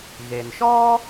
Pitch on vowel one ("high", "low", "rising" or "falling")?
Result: low